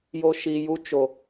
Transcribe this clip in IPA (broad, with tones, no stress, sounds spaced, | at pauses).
j o˦ ʃ i˧ j u˦ t͡ʃ o˨